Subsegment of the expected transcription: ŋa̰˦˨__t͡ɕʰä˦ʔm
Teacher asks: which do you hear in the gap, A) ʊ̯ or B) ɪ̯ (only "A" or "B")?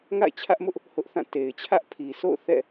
B